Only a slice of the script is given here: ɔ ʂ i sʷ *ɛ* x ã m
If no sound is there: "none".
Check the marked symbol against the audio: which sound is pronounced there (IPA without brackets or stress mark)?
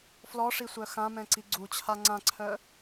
œ